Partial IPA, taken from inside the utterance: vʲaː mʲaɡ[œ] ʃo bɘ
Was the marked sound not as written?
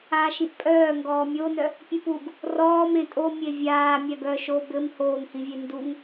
no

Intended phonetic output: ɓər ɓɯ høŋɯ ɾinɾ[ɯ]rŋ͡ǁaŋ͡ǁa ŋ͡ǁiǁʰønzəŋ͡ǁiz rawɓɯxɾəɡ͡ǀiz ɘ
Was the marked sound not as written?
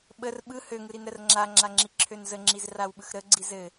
yes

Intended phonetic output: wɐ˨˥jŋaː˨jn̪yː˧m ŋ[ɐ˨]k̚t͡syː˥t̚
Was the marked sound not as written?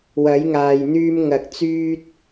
no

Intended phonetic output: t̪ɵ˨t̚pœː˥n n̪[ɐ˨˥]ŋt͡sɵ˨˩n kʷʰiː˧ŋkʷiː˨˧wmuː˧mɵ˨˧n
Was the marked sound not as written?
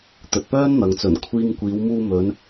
yes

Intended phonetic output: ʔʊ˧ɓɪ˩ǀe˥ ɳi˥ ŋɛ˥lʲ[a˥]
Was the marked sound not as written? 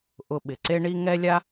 no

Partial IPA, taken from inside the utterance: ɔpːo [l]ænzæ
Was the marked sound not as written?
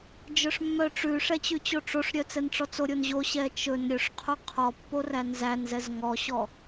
yes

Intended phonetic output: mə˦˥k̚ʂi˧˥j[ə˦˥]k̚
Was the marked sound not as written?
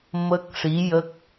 no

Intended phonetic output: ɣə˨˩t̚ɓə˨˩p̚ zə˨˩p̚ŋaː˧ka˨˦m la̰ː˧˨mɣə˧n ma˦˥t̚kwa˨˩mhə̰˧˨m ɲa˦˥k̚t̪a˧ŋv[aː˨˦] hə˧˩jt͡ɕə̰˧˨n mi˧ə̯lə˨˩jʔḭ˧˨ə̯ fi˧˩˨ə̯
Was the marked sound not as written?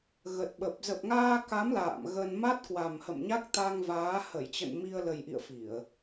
no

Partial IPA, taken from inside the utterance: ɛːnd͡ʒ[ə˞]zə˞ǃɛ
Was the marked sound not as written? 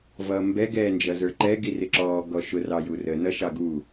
yes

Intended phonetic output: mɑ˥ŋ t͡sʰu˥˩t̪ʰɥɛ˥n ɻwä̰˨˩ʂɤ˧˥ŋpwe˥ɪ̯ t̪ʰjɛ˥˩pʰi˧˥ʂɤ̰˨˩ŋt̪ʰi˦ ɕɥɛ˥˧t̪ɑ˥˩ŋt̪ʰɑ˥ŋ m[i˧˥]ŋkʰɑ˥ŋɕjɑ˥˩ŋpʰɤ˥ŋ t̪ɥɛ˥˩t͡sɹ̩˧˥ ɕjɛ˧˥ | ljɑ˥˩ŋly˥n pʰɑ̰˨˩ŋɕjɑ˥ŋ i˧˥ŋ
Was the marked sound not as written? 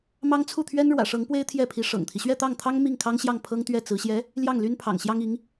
yes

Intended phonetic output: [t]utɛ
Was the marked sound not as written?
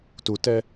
no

